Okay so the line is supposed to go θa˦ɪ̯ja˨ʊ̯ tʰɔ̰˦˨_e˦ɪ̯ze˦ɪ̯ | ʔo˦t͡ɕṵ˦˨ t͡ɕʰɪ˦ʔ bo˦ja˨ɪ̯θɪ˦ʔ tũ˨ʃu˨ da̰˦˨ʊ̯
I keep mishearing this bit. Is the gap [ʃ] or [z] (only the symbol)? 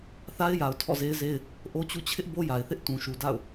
z